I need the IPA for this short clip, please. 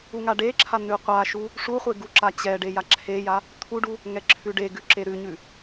uŋaɖeǁʰa n̪ʉqʷaʃu | ʂuχʷe ɡuǁat͡ɕɛɖe jaǁʰeja | t̪ʰuɖu | ŋɛǁʰʉɖeɡʉ ǁeɾʉɲʉ

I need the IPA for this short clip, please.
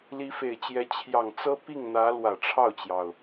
li˧˥fe˨˩ɪ̯t͡ɕjɛ˧˥ t͡ɕʰjɑ˨˩ŋt͡sɤ˥ pi˥˩ŋn̪ä˧˥ lwä˨˩ʈ͡ʂʰɑ˥˩ʊ̯t͡ɕjɑ˩ʊ̯

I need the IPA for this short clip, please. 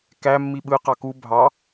kæ mːiɓɯ qɑku bʱɑ

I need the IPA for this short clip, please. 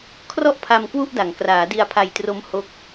kʰrɔ˥˩ʔpʰa˧m kwu˥˩ʔda˩˦ŋ kraː˩˦ di˧a̯pʰa˧jtro˦˥m ho˦˥k̚

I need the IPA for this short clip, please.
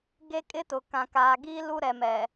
ɡe˦kʼɪ˦tʊ˨ kã˨kaː˨ɡiː˦ lu˦ɾɛ˨mɛ˨

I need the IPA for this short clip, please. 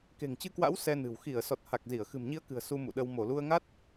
ke̤˨˩ŋt͡ɕɨ˧kwa̰˧˥w sɛ˧nɨ̤˨˩w xi˧˩ə̯ sɔ˨˩t̚ha˨˩k̚ zi˧˩ə̯xɨ̤˨˩mɲi˧ə̯kɨ̤˨˩ə̯ su˧ mṵ˧˨ɗə˧w mo˧˩lu˧ə̯ŋa˦˥t̚

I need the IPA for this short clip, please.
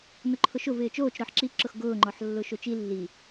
nʊǃʰʊʃʊv ɪːt͡ʃoːt͡ʃ ɾɔħǁi ǁʊxɡʊːŋ͡ǃɔħ lːʊːʃot͡ʃi lːi

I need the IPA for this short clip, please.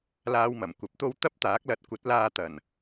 laː˧wmɐ˨˩mkʷɐ˨˥p̚t̪o˥w t̪ɐ˥p̚t̪aː˨˥k̚lɐ˧t̚ kʷɐ˨˥t̚laː˧ t̪ɐ˨˩n

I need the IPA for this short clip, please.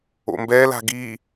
o̰mbɛla̤ ɡi

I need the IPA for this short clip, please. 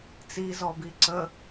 t͡sizɔbi ǀə

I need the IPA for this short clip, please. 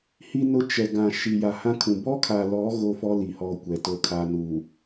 hi˦nʊ˦ t͡ʃɛ˨ ɡã˨ ʃi˨ja˨hã˦kʰũ˨ bɔ˦kʰa˨lɔ˨˦ ɣo˦fɔ˦ li˨hɔ˦˨ kʷɛ˨˦to˦kʰa˦ nuː˨

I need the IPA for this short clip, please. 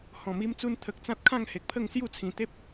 hɔ̃˨˩mi˦mt͡su˦n t̪ʰə˨k̚t͡sã˦t̚kʰã˥˧ŋ he˨k̚pʰə˥˧ŋsju˥˧t͡sʰĩ˨˩ t̪e˦p̚

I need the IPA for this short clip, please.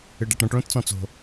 ɨɖaʈɾɔ̃ʈ ɭõtt͡sɔ̃t͡so̤

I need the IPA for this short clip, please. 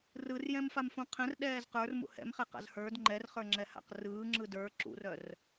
rɯr jɛ̃mfamfũqʰɛ̃r ɗɛːzqə˞r mṵhɛ̰mχɛqa̰z hə˞d ŋ͡ǃɛrχə˞ŋ͡ǁɛ ha̰qrɯː ŋ͡ǁɯdə˞ ǁṵrœr

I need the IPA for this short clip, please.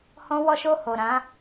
hɔ̃˧wɔ˧ʃo˧ ho˨ɾã˨˦

